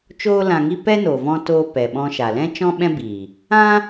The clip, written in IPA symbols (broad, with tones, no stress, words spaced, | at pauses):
t͡ʃoː˦lã˧ŋi˦ pɛ˦no˨vɔ̃˧ toː˧ pɛ˨ɓɔ̃˧ʃa˨ lɛ̃˦ t͡ʃɔ̃˦ɓɛ̃˦biː˨ | ã˦